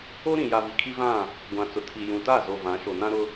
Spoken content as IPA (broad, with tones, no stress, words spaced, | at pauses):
o˦ɾĩ˨ja˨ vi˨kʰi˦vã˦˨ | ɡʷã˨t͡sʊ˨tʰi˨ jũ˨ta˦˨zo˨ vã˨˦ʃo˨nã˦ɾʊ˦